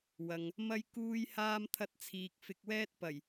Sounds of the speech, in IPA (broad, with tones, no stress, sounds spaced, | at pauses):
w ɐ˨ ŋ | m ɐ˧ j k uː˧ j h aː˧ m t̪ʰ ɐ˧ t̚ t͡sʰ iː˨ k̚ f ɪ˨ k̚ w ɛː˧ t̚ p ɐ˨˩ j